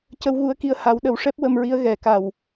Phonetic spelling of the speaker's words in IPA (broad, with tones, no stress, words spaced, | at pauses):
cə˧wɣu˧˥ə̯ki˧ə̯ ha˨˩˦wɗə˨˩˦wʂɛ˦˥p̚ wə˧mɹi˧˥ə̯ ɣɛ˨˩˨ka˨˩w